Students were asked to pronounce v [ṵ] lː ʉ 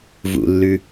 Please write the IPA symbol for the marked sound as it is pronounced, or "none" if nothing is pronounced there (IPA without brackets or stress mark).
ṵ